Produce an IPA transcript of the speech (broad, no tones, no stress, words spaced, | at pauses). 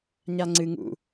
ɲaŋ͡ǀɨ ŋṵ